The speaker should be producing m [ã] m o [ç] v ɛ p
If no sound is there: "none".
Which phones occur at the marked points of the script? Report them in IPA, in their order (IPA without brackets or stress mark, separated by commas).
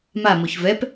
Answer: a, ç